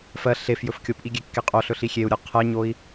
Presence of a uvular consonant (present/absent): present